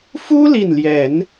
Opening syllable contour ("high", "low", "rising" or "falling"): high